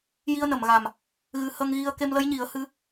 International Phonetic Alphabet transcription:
ji˧ə̯nə˨˩˨mɣa˨˩m | ɣɨ˧ hə˧ŋɣi˧ə̯ ke˧mlə˧˥jɲi˨˩˦ə̯ hɨ˧˥

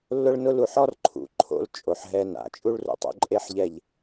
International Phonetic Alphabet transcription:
lːʊ˦ɭnʊ˦l u˨ħɔ˦rǃʰṵ˨ǃʰo̰˧l t͡ʃʼo˨ħɦɛ˧na̰˨ t͡ʃʼu˦ɭrṵ˨tˤo̰˧ ǃʼe˦ħʎɛ˦˨ʎ

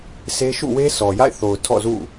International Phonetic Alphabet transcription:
se˦ ʃṵ˦˨we˦sɔ˨ja̰˦˨ɪ̯ θo˨ʊ̯ tʰɔ̰˦˨zṵ˦˨

